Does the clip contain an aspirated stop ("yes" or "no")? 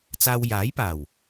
no